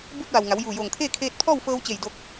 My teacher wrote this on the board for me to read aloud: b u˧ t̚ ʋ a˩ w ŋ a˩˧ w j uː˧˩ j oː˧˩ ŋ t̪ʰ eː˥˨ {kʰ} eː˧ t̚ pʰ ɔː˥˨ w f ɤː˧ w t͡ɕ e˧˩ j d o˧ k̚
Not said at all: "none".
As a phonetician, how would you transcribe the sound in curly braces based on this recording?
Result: kʰ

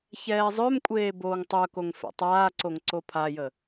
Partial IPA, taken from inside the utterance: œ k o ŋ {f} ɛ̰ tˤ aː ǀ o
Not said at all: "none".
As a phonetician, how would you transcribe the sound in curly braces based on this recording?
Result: f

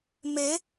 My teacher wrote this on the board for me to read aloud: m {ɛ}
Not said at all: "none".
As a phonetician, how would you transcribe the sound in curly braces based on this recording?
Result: e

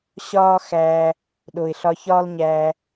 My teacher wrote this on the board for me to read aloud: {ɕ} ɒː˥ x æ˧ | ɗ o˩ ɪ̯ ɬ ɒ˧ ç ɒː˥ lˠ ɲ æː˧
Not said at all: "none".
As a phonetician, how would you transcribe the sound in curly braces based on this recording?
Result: ɕ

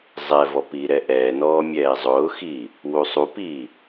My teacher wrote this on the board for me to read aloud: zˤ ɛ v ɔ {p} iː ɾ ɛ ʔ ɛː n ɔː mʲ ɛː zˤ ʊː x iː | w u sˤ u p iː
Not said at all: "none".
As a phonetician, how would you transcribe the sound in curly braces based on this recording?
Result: p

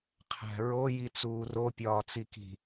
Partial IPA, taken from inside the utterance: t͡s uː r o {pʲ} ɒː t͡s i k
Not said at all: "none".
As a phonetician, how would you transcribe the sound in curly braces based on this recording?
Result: pʲ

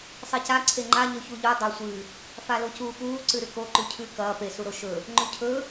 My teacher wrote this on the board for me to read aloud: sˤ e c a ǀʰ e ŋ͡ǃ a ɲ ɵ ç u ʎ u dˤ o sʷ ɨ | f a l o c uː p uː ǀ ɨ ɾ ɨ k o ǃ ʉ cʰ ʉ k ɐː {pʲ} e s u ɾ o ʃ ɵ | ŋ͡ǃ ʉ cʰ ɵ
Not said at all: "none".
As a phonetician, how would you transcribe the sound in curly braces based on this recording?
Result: p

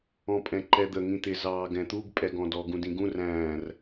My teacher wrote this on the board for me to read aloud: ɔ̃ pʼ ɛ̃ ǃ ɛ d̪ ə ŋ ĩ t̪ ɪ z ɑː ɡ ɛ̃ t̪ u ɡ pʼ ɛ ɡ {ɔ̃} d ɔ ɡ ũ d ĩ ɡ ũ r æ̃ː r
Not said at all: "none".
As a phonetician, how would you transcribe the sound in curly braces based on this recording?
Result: ɔ̃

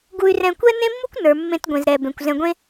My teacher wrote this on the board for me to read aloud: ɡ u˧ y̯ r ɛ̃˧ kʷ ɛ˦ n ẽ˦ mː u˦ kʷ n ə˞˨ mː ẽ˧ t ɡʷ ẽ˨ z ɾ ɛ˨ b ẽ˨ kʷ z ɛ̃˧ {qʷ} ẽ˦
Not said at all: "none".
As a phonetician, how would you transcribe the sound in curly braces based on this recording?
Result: ɡʷ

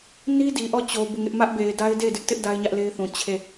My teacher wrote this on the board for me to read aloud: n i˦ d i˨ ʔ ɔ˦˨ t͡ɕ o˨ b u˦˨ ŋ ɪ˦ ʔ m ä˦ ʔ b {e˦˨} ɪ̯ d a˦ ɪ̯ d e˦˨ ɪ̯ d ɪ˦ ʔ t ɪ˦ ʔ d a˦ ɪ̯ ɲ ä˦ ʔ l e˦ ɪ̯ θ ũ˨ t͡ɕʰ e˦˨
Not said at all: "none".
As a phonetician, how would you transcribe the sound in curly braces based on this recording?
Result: e˨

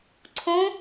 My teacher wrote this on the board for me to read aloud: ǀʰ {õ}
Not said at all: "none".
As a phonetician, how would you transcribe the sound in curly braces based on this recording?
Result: õ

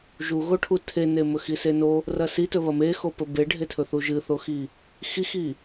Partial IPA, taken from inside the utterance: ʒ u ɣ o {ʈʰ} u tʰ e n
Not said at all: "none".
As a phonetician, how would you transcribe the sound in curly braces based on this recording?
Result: ʈʰ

